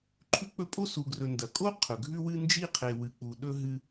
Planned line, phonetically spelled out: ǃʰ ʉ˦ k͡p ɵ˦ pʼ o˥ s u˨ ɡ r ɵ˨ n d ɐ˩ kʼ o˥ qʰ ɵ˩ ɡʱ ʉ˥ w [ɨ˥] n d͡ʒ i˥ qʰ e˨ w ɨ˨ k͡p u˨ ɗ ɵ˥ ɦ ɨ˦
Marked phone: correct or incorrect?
correct